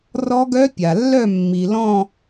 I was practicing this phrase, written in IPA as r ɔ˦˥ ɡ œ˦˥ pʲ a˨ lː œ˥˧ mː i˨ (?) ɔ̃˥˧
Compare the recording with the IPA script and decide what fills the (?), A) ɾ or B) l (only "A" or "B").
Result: B